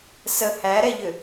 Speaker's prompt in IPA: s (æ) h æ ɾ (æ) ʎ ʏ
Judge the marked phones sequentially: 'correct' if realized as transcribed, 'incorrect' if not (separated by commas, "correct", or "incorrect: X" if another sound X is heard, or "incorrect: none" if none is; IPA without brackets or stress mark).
incorrect: ə, incorrect: ɛ